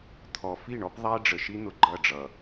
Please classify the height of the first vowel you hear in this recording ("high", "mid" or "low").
mid